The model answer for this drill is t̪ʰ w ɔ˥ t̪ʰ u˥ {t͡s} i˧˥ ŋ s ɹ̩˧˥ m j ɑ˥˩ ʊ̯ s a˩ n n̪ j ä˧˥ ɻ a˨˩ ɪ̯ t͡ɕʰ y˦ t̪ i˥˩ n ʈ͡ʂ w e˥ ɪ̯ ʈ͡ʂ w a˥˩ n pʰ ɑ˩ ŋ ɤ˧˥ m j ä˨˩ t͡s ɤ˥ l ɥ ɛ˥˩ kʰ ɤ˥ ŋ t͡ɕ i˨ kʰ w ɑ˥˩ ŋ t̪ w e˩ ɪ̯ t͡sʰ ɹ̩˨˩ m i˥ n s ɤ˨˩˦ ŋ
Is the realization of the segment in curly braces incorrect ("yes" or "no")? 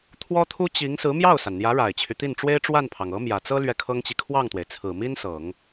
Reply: yes